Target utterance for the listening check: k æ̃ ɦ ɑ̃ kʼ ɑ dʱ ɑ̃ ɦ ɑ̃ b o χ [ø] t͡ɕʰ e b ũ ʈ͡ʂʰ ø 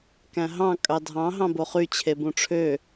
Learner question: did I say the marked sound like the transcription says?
no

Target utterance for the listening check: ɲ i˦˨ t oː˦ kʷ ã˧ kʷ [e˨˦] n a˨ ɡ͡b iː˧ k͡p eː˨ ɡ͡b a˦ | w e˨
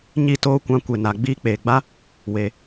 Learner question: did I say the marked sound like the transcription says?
no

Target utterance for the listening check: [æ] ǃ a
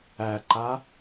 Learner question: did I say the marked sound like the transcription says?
yes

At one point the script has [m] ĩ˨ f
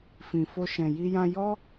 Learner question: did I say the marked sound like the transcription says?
no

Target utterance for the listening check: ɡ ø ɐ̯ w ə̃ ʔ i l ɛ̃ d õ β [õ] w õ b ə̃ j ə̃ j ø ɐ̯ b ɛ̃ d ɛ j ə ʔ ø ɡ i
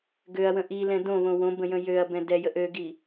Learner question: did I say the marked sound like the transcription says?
yes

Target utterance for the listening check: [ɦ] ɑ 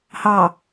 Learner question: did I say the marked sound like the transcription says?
no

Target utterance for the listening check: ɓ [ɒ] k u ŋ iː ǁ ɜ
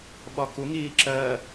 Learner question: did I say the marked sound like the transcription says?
yes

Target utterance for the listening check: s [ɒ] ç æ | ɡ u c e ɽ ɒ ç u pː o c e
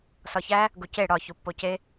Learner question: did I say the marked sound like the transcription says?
yes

